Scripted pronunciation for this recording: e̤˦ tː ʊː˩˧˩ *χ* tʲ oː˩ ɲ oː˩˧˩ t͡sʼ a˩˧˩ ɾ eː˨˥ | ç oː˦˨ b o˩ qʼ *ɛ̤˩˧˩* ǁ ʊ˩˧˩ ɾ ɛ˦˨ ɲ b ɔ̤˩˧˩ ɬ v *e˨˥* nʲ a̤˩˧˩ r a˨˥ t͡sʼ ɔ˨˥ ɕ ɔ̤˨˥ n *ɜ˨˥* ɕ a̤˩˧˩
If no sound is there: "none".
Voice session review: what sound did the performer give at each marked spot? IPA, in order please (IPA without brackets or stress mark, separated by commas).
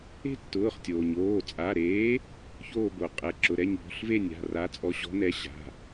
χ, ɛ˩˧˩, e˦˨, ɛ˨˥